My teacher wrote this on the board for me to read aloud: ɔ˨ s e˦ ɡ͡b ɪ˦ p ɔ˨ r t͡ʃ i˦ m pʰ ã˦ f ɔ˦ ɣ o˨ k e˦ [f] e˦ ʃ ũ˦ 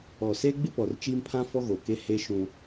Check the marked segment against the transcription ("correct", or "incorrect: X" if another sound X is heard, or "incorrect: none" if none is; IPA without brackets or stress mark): incorrect: h